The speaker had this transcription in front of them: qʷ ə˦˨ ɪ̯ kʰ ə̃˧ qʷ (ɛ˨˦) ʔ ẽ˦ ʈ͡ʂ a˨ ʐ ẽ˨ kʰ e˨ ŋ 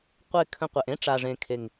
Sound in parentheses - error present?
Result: yes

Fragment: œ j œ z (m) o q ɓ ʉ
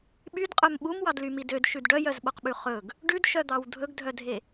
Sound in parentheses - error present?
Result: yes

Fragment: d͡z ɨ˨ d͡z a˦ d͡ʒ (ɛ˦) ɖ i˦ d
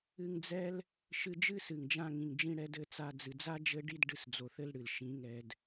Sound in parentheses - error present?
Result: yes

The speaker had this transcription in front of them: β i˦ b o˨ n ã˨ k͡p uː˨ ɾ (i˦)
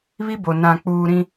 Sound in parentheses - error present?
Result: yes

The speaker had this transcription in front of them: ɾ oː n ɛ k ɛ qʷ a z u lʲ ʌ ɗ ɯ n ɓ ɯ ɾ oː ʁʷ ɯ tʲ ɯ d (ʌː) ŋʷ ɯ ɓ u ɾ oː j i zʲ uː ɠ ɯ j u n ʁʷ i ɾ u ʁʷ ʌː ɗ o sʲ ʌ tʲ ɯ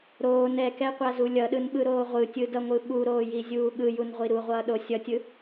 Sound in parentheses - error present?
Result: yes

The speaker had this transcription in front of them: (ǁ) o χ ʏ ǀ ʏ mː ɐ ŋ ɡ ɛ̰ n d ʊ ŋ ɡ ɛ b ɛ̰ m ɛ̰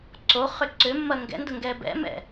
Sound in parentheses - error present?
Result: yes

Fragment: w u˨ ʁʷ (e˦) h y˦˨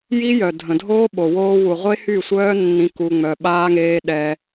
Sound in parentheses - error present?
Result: no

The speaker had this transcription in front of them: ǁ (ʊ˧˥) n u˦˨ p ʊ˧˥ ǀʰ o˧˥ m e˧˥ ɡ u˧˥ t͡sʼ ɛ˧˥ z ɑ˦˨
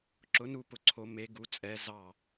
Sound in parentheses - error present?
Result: no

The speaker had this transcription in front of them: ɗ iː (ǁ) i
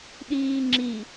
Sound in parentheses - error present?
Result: yes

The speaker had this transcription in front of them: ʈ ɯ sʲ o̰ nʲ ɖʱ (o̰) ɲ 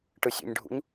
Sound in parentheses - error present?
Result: yes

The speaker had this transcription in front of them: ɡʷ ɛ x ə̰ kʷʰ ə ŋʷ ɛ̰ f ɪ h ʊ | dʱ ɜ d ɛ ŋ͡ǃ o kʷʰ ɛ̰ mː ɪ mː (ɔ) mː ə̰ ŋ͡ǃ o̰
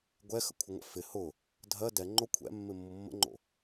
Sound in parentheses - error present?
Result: yes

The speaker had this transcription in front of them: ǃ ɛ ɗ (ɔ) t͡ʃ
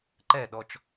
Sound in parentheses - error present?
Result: no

